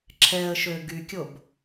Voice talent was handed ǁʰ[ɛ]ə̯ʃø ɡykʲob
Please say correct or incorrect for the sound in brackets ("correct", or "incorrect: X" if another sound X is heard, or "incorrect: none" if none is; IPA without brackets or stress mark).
correct